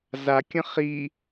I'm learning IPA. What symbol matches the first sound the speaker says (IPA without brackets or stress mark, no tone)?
z